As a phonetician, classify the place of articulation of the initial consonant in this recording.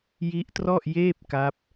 palatal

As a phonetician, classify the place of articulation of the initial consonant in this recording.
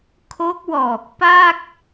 velar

